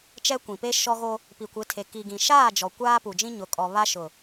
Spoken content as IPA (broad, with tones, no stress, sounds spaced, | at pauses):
t͡ʃ ɛ˦ kʷ ĩ˨ p e˦ ʃ ɔ˦ ɣ o˦ | p i˨ kʷ ɪ˨˦ tʰ e˨ k i˨ ɡ ĩ˨ ʃ aː˦˨ d͡ʒ ɔ˨ kʷ aː˦ p u˨ d͡ʒ ĩ˦ ɲ ʊ˨ kʼ ɔ˨ β a˦ ʃ ʊ˨